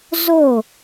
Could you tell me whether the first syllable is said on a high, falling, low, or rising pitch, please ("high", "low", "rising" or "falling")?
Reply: falling